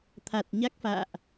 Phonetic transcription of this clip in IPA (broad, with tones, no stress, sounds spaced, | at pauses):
t̪ʰ a˨˩ t̚ ɲ a˦˥ k̚ f a̰ː˧˨ ʔ